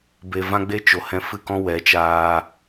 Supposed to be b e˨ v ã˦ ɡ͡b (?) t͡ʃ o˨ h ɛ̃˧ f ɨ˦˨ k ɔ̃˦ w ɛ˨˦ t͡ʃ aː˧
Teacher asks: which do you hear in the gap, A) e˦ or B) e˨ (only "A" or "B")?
A